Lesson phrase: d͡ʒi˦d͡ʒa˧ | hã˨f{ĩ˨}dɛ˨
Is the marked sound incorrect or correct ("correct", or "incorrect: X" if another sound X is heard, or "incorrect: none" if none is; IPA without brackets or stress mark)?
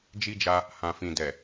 correct